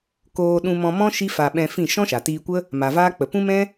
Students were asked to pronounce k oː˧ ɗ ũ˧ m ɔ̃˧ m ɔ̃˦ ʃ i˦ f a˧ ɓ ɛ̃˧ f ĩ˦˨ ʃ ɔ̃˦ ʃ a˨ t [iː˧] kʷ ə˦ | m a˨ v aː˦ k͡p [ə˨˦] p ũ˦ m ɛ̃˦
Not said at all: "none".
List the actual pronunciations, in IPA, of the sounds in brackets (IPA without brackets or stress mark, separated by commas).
iː˧, ə˨